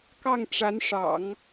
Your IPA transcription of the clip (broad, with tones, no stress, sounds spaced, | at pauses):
k ɑ˥˩ ŋ ʈ͡ʂ a˧˥ n ʂ ɑ̰˨˩˦ ŋ